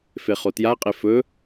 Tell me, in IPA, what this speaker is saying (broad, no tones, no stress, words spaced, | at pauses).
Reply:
feχotjaqʼe fɵ